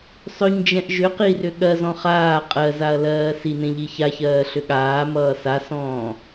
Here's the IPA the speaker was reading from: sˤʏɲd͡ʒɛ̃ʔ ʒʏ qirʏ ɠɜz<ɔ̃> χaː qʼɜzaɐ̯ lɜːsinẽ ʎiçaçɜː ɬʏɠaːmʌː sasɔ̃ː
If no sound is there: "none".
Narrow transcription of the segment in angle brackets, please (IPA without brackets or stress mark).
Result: ɔ̃